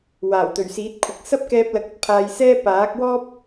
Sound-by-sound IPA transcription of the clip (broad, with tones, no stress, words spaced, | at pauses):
waː˨˩wt̪ɵ˨˩ɥsiː˨˥t̚kʷʰɐ˨k̚ sɐ˥p̚kɛː˧p̚lɐ˨˥k̚ ɐ˥t̚pʰaː˧jsɛː˥ paː˨˥k̚wɔː˥p̚